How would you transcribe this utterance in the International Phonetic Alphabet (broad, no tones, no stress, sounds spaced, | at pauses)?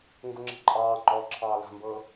ŋ ɡ u ŋ͡ǁ i̤ ǃʼ ɑː ŋ͡ǃ ɔː ǁʰ ɑː l a̤ m b ɤː